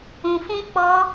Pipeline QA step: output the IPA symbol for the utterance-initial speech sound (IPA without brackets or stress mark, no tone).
ũ